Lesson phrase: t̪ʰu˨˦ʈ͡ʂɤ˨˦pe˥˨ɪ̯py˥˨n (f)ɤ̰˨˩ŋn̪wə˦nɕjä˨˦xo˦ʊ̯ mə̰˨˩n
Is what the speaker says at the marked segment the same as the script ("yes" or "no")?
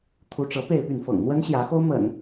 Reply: yes